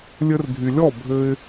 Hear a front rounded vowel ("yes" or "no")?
yes